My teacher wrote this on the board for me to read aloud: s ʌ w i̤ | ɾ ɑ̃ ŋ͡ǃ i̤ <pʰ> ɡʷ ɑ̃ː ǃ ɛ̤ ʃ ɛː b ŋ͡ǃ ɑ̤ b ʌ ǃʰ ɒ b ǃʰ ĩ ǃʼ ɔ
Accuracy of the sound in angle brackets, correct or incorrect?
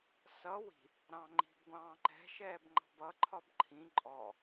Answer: incorrect